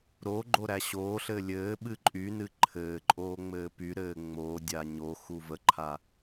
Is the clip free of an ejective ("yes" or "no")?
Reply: no